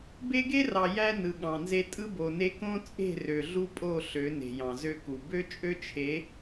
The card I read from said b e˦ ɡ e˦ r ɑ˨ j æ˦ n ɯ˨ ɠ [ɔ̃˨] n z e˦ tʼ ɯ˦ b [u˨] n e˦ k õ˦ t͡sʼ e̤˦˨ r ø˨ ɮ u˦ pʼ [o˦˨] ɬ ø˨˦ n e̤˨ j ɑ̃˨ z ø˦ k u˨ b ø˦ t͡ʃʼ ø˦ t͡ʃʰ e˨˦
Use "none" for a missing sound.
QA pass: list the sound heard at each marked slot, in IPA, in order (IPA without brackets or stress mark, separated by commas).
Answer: ɑ̃˨, o˨, o˦˨